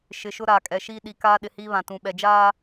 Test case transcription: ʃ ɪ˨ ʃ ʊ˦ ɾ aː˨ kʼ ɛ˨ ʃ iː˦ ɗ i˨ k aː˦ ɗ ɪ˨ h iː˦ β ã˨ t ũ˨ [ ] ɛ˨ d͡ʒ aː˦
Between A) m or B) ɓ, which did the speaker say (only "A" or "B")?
B